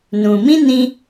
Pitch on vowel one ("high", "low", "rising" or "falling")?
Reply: low